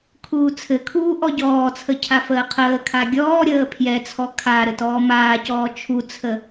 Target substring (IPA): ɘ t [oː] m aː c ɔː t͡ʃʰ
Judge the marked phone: incorrect: ɔː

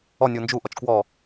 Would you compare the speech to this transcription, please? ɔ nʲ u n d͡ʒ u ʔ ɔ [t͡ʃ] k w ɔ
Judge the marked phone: correct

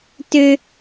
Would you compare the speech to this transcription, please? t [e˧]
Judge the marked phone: incorrect: ø˧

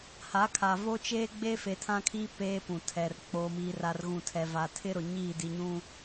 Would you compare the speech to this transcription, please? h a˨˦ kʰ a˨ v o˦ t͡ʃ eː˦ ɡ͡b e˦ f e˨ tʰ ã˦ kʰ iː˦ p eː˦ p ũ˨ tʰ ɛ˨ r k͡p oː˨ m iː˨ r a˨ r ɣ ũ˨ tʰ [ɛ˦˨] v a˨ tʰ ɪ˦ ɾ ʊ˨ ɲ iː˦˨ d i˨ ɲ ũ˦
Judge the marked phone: incorrect: ɛ˨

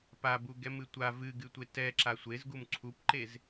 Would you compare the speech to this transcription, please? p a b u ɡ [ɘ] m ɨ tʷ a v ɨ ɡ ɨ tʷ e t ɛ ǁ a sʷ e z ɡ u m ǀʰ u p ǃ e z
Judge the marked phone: incorrect: ɛ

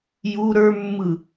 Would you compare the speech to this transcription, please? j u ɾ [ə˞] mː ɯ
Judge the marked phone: correct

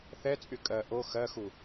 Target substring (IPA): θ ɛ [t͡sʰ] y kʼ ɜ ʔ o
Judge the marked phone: incorrect: t͡sʼ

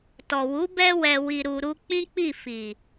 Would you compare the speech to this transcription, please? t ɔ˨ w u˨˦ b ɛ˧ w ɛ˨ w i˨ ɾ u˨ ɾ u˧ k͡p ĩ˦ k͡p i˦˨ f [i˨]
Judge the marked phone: correct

